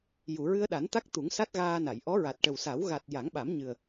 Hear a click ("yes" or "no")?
no